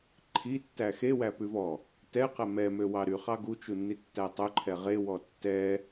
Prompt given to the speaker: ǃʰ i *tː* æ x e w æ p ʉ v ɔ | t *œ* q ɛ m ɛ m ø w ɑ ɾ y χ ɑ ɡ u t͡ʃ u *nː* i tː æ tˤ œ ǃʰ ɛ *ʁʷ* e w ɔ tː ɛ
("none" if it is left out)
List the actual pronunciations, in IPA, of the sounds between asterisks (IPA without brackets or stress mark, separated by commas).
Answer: tː, ɛ, nː, ʁ